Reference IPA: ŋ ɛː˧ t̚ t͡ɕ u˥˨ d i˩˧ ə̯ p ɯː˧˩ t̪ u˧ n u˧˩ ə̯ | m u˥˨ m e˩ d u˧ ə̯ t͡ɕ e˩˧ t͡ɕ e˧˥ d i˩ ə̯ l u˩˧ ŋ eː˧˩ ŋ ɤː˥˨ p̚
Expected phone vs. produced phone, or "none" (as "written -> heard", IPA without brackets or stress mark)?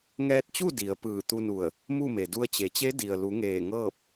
none